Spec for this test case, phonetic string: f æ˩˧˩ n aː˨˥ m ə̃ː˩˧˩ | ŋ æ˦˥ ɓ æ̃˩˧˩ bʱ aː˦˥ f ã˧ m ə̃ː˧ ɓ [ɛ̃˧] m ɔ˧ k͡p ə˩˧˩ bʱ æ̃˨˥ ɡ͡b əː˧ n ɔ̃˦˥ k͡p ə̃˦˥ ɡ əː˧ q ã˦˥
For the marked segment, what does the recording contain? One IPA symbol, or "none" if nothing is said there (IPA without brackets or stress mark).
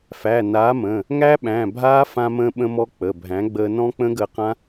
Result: ə̃˧